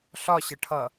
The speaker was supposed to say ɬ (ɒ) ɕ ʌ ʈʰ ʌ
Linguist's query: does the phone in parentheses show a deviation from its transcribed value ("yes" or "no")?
no